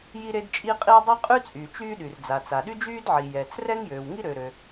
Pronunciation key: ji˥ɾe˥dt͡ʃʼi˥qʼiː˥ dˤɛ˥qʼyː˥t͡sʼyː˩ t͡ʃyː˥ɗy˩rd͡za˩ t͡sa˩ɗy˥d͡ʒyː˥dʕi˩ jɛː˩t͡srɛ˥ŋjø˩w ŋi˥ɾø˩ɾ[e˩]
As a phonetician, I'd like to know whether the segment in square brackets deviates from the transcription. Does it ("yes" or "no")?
yes